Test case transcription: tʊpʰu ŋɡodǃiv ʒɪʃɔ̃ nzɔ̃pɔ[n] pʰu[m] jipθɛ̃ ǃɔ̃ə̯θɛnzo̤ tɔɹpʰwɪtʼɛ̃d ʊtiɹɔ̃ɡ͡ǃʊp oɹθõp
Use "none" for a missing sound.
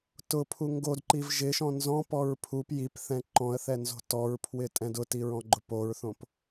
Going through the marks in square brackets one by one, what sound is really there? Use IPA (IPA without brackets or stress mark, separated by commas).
ɹ, p